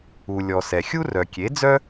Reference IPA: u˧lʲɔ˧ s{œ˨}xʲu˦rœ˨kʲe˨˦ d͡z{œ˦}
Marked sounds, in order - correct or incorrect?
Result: incorrect, correct

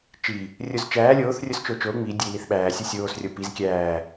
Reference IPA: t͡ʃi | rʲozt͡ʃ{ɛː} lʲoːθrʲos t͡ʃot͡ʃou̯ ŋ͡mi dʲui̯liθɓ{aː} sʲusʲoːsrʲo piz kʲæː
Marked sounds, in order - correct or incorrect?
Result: incorrect, incorrect

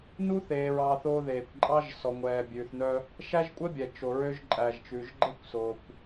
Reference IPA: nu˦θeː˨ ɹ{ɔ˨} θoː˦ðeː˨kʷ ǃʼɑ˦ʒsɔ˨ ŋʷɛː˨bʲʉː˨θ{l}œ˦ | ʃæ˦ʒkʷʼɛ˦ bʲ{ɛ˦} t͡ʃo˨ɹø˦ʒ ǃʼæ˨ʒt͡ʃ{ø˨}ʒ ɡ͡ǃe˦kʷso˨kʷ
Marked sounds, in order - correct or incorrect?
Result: incorrect, incorrect, incorrect, incorrect

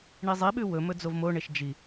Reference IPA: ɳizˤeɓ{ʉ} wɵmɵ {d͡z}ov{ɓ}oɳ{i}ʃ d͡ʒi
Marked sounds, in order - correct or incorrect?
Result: correct, correct, incorrect, incorrect

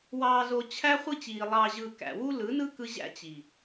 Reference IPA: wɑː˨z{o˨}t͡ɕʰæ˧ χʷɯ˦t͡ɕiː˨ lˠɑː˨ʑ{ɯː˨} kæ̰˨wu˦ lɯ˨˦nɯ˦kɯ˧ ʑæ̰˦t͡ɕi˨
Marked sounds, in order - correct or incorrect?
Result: correct, correct

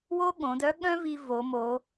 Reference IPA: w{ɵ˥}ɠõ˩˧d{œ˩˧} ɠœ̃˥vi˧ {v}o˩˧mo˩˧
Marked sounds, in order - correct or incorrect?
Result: incorrect, incorrect, correct

